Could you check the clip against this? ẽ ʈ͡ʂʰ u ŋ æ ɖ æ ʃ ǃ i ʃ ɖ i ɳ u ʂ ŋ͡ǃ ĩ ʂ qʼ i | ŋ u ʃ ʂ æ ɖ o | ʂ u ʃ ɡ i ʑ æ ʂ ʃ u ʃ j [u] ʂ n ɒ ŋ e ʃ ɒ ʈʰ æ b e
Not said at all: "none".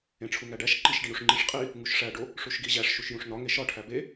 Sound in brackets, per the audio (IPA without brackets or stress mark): ũ